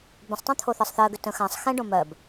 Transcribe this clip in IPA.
b ə̃ sˤ tˤ ɛ̃ t̪ʰ o θ ɜ sˤ θ ɜ ɡ ʏ t ə̃ x ã sˤ x ɛ̃ ɖ õ m ɜ b

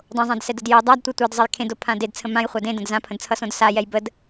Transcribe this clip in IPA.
dˤ õ zˤ ã d s ɛ d ə d j o dˤ a d tʷ e tʷ ɛ d zˤ ə j kʰ ẽ d o pʰ ã d e d t͡sʰ ə̃ m ã j χʷ a d ẽ d ə̃ d z ã pʰ ə̃ d t͡sʰ ʌ s õ d s a j ɛ j b ə d

